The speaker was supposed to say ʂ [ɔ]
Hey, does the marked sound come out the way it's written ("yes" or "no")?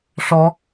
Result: yes